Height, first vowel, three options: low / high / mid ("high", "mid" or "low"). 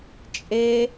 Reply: mid